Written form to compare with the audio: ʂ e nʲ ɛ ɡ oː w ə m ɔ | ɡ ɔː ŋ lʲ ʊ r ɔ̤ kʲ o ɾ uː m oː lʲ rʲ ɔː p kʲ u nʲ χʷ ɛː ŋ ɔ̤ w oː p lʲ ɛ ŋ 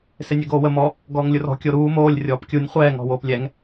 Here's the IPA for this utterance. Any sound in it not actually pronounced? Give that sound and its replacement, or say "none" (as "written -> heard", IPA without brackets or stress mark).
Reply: ʂ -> s